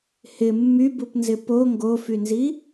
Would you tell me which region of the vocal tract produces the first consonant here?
throat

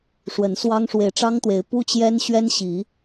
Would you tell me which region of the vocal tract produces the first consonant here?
retroflex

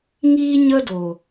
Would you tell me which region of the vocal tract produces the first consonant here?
velum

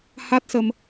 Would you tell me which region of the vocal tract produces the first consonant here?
throat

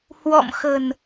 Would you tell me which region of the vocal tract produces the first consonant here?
throat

